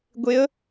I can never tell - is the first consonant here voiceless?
no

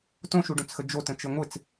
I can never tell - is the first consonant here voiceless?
yes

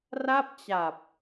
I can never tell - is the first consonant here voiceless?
no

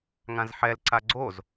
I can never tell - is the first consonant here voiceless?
no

